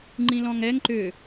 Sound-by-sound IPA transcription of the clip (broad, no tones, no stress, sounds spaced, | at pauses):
ŋ͡ǃ ĩ l ɔ̃ ŋ ɛ ŋ ǃ ʏ